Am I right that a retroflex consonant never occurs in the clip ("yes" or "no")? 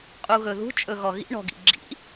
no